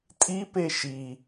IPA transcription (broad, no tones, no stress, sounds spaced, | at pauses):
tʼ i p e ʃ i